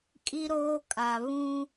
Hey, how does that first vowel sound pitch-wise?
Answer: high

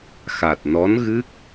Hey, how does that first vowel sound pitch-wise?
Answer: low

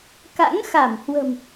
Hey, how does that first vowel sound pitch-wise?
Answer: rising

